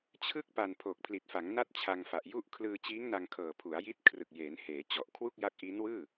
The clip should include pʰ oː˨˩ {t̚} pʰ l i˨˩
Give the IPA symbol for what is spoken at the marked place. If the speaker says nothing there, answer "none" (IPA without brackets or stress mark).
k̚